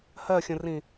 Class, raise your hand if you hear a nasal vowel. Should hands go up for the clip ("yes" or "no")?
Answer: yes